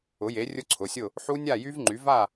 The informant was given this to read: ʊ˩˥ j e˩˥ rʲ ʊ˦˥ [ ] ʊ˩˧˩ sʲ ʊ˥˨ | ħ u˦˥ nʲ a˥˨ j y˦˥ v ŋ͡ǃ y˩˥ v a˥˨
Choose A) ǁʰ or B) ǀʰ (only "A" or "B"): B